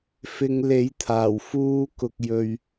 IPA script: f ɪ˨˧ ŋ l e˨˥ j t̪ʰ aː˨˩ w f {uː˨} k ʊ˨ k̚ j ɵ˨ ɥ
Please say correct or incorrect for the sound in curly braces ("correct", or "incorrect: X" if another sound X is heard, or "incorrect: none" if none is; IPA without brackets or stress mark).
incorrect: uː˨˧